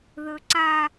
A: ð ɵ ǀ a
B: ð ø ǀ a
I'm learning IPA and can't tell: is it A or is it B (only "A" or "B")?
A